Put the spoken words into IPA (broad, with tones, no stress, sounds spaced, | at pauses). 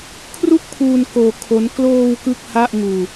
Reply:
kʰ r u˥˩ k̚ pʰ uː˧ n k oː˧ kʰ o˦˥ n k l oː˧ w k ɯ˥˩ k̚ h a˥˩ ʔ ŋ uː˧